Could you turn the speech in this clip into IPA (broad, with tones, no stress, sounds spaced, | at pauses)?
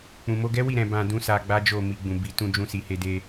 k͡p ũ˨ m o˧ ɡ ɛ˦ w i˦˨ ɾ ɛ̃˧ b ã˧ d ũ˦ s a˧ ɡ͡b a˦ d͡ʒ o˦˨ m i˧ ɡ͡b ũ˨ b i˧ t ũ˧ d͡ʒ ũ˧ s i˨ h e˧ d e˧